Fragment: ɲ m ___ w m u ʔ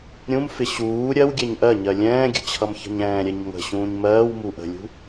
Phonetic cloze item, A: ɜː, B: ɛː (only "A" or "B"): A